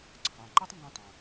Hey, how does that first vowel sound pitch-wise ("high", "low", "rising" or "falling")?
low